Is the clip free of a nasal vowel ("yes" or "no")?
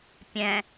no